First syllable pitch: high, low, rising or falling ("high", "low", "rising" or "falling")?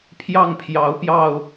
falling